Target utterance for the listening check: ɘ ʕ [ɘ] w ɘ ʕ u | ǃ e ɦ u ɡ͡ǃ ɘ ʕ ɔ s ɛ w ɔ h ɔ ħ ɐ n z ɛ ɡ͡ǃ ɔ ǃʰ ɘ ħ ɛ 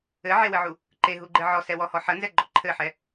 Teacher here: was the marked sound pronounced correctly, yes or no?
no